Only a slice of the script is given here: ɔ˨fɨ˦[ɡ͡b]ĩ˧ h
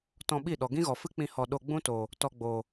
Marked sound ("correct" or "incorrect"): incorrect